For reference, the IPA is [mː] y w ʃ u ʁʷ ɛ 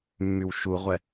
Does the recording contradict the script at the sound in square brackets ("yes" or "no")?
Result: no